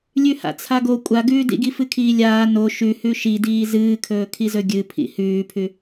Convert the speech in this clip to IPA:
lʲ ʉ h a̰ t͡sʰ a ɡ o kʷʼ a ɡ ʉː d ḭ ɡ i f ɨ kʰ iː lʲ aː n o ʃ ʉ h ʉ ʃ i d iː z ɨː kʰ ɵː kʰ i z ɵ ɡʲ ɨ pʰ ḭ h ʉː pʰ ʉ

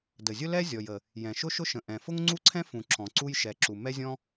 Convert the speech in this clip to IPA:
d ə˩ zʲ ʊ˥ l ɛ˥ zʲ ɔ˩ j ə˩ | j ɛ̃˩ ʃ ʊ˥ ʃ ʊ˥ ʃ ə̃˩ ʔ ɛ̃˩ f ʊ˥ ŋ ŋ͡ǀ u˥ ǀʰ ɛ̃˥ f ũ˩ ǁ ɔ̃˩ ǀ u˥ j ʃ ɛ˩ ǁ u˩ m ɛ˥ zʲ ɔ̃˥

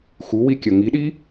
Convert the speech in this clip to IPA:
x u w i kʲ ɐ ŋ i ɗ i

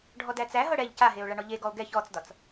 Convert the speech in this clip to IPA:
ɖʱ ɔ d æ t͡s æ ɦ ɤ ɽ ɛ ʎ c a ɦ e o̯ ɭ a ɳ ɔ ʎ e ɡ ɔ o̯ ɡ ɛ ç ɔ t͡s d ɒ t͡s

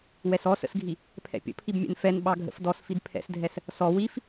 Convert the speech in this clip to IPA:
w ɛ s ɔ s ə̰ s ɡʱ i | pʰ ɛ̰ pʲ ə̰ pʰ i b mʲ ɛ̰ n f ɛ n ɓ ɑ ɡʱ ə̰ f d ɔ s f i d pʰ ɛ̰ s dʱ ɛ s | s ɔ w i f

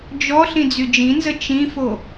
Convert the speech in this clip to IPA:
d͡ʒ ɔ ɬ ĩ d͡z y d͡ʒ ĩ n z ə t͡ʃ ĩ f o

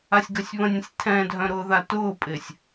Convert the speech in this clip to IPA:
a sʲ ɡ œ sʲ β ə̃ nʲ ə̃ sʲ tʰ ɛ̃ dʱ œ̃ ɾ ʊː ð a t ʊː pʼ ɪː sʲ

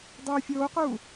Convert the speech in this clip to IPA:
dˤ ɯː fʲ oː q uː

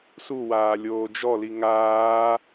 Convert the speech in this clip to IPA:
s u w aː lʲ oː d͡ʒ ɔ l i ŋ aː

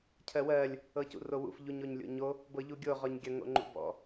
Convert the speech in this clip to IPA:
cʰ ɜ w ɜ lʲ | ɤ c ṵ r o w ṵ f ʎ u ɲ o ɲ lʲ o̰ ɲ o | b ɤ ʎ u ɡʲ o ʁ ɔ ɲ ɡʲ ɐ ŋ o̰ ŋ͡ǃ ṵ b ɔ̰

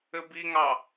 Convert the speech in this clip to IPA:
ɘ b i ŋ ɑ

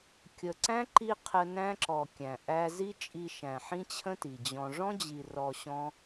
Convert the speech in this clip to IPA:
kʲ ə˨ ǀ æ̃˦ ǃ i˧ qʰ ə˧ n æ̃˦ ǁ ɔ˨ kʲ æ̃˨ ʔ æ˦ z i˦ t͡ʃʼ i˧ ʃ æ̃˨ ħ ĩ˦ t͡ɕʰ ə̃˦ t i˨ d͡ʑ ɔ̃˧ ʐ ɔ̃˦ d͡ʑ i˨ r ɔ˧ ɕ ɔ̃˦

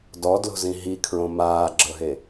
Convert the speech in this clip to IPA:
d ɔ d l o̤ z ĩ ɦ i kʰ ɹ õ m aː ɡ͡ǁ ɤ ɦ e

